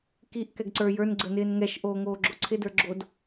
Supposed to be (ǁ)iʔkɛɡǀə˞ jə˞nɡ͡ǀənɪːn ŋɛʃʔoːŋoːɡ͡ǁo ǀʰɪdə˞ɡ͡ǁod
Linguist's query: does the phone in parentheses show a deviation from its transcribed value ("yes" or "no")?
yes